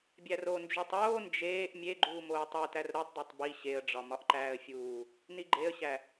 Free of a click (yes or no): no